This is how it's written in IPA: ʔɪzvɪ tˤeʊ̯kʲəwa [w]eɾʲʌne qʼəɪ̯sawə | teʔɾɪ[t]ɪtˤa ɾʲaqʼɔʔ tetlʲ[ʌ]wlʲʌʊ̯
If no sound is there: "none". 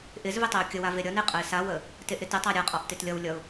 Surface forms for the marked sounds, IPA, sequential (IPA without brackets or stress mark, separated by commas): v, t, ʌ